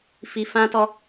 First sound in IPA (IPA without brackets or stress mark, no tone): f